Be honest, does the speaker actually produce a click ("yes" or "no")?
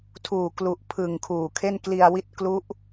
no